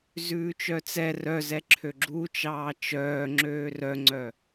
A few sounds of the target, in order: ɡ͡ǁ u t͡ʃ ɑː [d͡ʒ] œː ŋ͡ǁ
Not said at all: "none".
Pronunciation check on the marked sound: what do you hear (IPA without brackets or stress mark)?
t͡ʃ